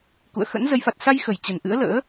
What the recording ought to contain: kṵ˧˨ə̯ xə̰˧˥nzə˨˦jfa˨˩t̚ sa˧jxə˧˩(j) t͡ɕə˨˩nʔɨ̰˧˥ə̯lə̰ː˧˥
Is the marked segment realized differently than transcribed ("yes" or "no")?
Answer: no